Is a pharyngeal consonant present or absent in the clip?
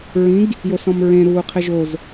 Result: absent